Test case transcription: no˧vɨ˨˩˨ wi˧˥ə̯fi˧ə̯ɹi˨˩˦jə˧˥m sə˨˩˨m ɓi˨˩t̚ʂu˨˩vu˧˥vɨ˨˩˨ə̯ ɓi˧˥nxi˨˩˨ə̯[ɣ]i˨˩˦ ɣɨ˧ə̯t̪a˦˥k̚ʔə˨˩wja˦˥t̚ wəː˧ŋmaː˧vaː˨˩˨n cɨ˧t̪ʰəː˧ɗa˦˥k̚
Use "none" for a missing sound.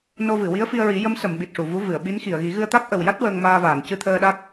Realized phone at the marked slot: ɣ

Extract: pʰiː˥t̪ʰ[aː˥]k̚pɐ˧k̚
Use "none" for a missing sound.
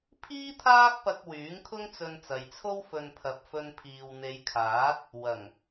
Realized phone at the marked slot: aː˥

